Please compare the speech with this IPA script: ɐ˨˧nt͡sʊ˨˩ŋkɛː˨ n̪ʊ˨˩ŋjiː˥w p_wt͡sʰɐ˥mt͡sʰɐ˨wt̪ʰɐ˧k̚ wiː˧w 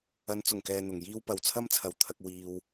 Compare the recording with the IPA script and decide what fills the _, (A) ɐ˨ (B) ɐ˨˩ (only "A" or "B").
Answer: A